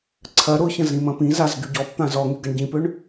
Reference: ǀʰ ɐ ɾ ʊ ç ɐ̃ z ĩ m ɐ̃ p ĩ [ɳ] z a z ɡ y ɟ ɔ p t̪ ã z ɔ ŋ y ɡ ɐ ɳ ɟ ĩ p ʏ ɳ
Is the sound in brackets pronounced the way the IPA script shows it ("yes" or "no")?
no